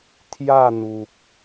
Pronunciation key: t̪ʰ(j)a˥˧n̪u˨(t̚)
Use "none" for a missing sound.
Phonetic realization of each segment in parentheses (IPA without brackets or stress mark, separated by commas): j, k̚